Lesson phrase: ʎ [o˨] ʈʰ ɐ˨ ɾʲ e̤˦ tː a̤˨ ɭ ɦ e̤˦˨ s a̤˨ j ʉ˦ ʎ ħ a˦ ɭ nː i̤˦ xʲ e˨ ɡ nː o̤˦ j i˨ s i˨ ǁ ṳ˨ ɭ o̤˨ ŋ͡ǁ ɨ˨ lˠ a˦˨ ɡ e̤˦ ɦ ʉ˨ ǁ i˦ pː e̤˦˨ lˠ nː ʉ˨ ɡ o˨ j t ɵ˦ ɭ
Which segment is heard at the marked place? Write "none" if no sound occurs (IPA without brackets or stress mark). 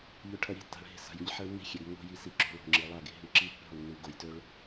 ɵ˨